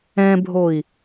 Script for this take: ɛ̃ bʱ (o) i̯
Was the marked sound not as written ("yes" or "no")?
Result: no